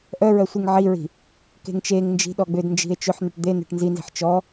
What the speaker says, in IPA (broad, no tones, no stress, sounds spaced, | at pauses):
ʔ œ ɹ œ sʷ i ŋ ʕ i ɹ i̤ | k e̤ ŋ t͡ʃ e ŋ n d͡ʒ i̤ ɗ ɔ ɡ͡b ʏ d n d͡ʒ i̤ e̯ t͡ʃ ʏ ħ n̪ ʏ ʈ d̪ e n̪ e̤ ʈ n z i n z i̤ ħ t͡ʃ ɔ